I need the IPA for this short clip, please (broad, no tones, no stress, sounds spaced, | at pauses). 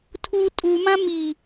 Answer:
tʰ u tʼ u m ã m i